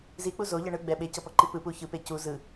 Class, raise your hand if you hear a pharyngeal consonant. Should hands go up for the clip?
no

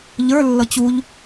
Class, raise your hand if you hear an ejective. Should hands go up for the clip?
no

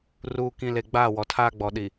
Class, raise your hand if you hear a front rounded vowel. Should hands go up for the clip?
no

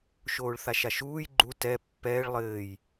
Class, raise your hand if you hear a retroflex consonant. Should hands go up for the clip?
yes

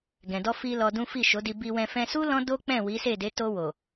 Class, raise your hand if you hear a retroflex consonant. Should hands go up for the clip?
no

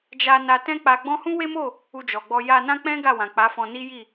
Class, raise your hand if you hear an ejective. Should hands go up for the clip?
no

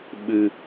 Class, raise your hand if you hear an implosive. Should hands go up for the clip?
yes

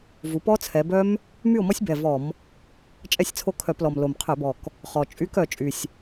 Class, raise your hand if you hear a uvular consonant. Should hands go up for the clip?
yes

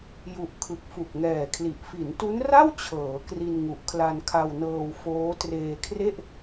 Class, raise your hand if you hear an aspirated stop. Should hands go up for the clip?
yes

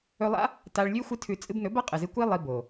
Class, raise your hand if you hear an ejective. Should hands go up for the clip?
yes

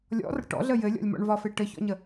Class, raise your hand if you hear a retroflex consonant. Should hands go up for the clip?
yes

